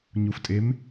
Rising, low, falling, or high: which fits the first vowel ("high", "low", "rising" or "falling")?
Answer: low